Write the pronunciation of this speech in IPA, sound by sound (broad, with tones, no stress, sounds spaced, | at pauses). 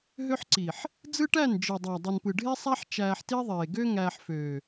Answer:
ɦ ø˦ ħ ǀ i˨ ħ | d͡z ɯ˦ ʈ æ˦˨ n d͡ʒ ɯ˨ dˤ æ˨ dˤ ɯ˨ n p ɯ˨ ɖʱ e˦ sˤ æ˦ ħ t͡ʃ æː˧ ħ t i˦ ðˤ eː˨ ɡ ø˦ ŋ æː˧ ħ f øː˨